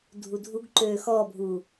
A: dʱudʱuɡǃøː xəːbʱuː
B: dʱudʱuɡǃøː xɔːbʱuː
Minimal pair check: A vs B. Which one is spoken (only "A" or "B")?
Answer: B